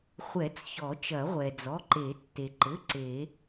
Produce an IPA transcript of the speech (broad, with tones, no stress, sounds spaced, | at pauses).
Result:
χʷ ɛ˨˩˦ t͡s ç ɔ˨˩˦ t͡ʃ ɐ˨˩˦ ʁʷ ɛ˩ d͡z ɔ˩˧˩ ǃ e˨˩˦ tː e˩ ǃ ɘ˩˧˩ ǀ e˨˩˦